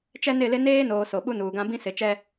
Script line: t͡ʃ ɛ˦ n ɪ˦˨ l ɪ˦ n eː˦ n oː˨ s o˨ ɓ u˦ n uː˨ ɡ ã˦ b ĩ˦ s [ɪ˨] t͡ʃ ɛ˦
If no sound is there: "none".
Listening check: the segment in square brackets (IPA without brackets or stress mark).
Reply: ɪ˨˦